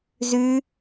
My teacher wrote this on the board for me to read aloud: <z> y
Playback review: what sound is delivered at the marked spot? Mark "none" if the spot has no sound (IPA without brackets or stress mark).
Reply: z